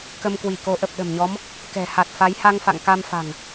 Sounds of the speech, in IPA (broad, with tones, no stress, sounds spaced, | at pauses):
k ə˧ m k w i˧˩ k o˨˦ ʔ ə˨˩ p̚ ɗ ə̤˨˩ m ɲ ɔ˨˦ m | k ɛ̤˨˩ h a˨˩ t̚ f a˨˦ j h a˧ ŋ f a̰˧˨ ŋ k a˧ m f a̤˨˩ ŋ